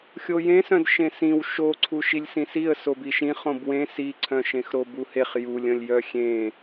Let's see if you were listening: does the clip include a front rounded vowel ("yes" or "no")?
yes